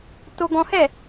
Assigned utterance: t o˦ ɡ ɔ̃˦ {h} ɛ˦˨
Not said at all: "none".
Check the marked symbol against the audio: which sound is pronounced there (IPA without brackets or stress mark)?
h